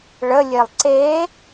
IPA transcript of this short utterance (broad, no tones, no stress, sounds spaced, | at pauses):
ɭ ə lʲ e lˠ ǀ e